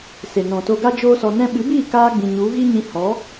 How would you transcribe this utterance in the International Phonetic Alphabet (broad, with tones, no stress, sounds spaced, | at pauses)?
s e˨ n ɔ̃˨ t o˧ ɡ a˦ d͡ʒ oː˦ s ɔ˧ n ɛ̃˧ ɓ ɨ˨˦ b iː˦˨ k aː˧ ɡ͡b ĩ˨ ɲ u˨˦ ɣ i˦ ɲ ĩ˧ h ɔ˨˦